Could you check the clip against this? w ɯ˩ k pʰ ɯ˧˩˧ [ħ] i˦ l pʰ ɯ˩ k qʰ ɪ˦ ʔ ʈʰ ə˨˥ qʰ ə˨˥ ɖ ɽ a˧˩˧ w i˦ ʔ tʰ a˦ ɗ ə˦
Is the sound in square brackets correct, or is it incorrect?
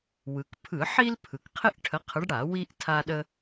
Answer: correct